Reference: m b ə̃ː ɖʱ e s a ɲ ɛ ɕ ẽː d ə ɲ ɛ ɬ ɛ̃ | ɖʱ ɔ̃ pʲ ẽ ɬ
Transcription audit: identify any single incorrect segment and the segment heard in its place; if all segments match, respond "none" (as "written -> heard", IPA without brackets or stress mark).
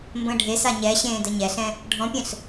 none